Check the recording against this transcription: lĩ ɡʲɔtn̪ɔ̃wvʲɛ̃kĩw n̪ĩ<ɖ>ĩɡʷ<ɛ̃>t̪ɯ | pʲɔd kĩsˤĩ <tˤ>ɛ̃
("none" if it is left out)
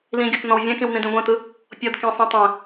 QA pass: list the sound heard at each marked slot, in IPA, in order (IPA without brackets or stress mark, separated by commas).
d, ɛ̃, tˤ